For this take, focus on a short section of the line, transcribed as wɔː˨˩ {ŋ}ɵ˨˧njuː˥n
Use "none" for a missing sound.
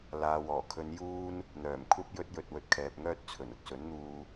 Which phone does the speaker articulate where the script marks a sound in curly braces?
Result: kʰ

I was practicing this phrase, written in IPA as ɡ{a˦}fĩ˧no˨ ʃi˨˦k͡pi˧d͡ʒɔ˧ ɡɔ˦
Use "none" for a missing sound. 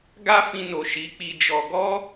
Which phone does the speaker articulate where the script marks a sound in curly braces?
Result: a˦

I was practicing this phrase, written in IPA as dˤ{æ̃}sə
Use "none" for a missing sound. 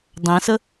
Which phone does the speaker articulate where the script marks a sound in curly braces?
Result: æ̃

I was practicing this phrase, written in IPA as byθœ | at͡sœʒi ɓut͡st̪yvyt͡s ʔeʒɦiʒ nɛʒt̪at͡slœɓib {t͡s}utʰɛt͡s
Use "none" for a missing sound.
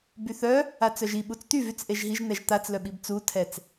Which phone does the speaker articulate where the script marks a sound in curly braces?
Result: t͡s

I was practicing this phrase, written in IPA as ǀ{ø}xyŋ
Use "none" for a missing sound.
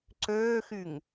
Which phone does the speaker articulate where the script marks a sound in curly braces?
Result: øː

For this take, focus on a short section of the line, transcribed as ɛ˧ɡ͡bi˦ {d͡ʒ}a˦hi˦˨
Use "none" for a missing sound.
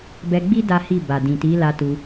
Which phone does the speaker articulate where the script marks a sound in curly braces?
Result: d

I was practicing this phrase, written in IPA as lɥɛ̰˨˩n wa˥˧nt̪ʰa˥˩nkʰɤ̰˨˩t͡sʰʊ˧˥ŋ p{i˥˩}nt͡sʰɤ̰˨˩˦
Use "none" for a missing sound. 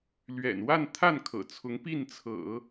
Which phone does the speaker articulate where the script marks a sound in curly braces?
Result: i˥˩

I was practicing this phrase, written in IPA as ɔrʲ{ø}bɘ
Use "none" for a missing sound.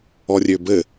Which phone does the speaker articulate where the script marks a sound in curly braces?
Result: ø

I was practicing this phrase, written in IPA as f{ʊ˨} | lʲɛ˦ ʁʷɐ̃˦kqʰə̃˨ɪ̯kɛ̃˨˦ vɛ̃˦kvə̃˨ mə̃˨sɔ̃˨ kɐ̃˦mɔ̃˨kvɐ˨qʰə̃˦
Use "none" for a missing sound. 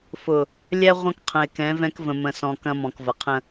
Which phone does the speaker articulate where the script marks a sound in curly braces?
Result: ʊ˨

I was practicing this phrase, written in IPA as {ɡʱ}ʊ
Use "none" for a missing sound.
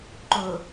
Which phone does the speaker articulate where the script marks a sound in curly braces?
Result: ǃ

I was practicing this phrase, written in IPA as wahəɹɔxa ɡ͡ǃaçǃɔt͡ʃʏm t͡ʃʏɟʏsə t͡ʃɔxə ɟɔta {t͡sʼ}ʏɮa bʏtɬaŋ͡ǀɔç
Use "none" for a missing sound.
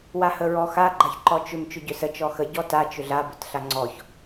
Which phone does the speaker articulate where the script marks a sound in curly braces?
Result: t͡ʃ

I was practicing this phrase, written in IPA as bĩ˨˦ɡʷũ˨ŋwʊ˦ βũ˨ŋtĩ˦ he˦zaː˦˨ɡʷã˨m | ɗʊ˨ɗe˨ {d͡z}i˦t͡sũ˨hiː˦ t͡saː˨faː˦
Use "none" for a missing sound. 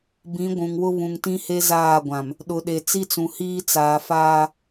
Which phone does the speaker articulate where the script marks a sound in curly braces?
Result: t͡s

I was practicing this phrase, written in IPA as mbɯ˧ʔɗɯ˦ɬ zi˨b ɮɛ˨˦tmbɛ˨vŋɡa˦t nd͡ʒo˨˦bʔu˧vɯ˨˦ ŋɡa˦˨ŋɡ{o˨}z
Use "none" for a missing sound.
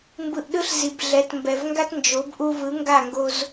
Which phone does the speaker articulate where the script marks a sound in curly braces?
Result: o˧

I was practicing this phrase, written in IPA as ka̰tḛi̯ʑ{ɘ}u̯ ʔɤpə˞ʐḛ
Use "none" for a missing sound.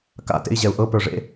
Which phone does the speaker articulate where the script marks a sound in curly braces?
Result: ɛ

